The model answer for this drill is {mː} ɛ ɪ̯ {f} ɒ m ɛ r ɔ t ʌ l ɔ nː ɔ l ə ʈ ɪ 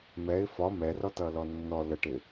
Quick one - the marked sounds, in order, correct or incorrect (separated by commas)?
incorrect, correct